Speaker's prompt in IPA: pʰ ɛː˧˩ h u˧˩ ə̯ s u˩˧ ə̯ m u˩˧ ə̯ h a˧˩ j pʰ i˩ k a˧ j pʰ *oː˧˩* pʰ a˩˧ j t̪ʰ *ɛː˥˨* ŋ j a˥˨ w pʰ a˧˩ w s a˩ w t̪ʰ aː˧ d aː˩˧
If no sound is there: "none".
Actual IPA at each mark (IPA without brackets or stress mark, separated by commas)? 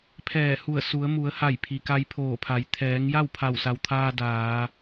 oː˧˩, ɛː˩˧